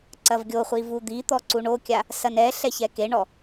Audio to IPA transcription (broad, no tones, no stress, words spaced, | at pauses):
ǀɐvɡʲoχʷi vud̪it̪ɔ ǀuɳokʲa | sɐnɛɬɛ çɛkeɳɔ